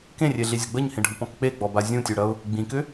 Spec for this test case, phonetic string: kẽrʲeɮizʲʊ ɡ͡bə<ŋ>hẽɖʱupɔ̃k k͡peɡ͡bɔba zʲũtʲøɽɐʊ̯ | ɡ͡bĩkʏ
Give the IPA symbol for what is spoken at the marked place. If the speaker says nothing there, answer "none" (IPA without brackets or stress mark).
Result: ɲ